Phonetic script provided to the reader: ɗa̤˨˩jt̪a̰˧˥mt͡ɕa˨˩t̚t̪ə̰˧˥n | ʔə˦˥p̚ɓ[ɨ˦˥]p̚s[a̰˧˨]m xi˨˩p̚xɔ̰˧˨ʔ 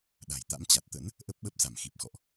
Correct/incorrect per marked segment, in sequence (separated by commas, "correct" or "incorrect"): incorrect, incorrect